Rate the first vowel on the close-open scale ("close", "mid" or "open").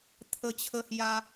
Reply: mid